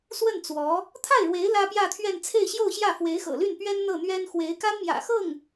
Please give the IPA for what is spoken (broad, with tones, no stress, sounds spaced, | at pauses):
s w ə˥˩ n t͡s w ɔ˧˥ | t̪ʰ a˥˩ ɪ̯ ɻ w e˧˥ ɪ̯ l ä˥ p j ä˥˧ t̪ʰ ɥ ɛ˥˧ n t͡sʰ e˥˧ ɪ̯ ɕ j o˥˧ ʊ̯ ɕ j ä˥˩ f w e˧˥ ɪ̯ x ɤ̰˨˩ l y˥˩ n p ɥ ɛ˥ n n̪ ɤ˥˩ n̪ ɥ ɛ˥ n x w e˧˥ ɪ̯ k a˥ n m j ä̰˨˩ x ɤ˥˩ ŋ